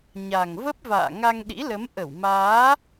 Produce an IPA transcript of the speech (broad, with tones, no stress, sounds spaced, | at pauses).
ɲ a˨˩ ŋ v ə˦˥ p̚ v a̰ː˧˨ ŋ a˧ ŋ ɗ ḭ˧˥ l ə˨˦ m ʔ ə˧˩ w m aː˨˦